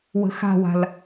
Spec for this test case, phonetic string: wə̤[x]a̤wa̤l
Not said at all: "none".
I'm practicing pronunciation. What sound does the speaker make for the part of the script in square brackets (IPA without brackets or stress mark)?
x